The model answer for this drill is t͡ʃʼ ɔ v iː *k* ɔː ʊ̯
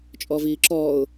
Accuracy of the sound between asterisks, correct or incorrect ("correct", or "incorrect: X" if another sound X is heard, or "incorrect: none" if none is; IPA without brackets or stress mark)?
incorrect: ǁ